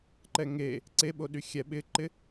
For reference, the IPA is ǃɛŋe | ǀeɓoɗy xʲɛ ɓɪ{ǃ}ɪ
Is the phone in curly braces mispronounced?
no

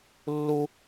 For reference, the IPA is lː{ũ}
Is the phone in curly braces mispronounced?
yes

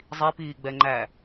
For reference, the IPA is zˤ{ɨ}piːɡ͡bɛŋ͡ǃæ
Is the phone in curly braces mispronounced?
yes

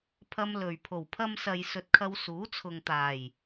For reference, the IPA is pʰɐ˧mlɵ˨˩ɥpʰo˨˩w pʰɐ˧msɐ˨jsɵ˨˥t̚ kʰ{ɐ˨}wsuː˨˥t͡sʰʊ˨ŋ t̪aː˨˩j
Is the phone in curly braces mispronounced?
yes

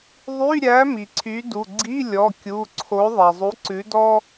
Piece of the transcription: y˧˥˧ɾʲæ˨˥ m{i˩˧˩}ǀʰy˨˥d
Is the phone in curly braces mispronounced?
yes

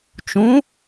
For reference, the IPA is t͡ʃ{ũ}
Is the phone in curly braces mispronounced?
no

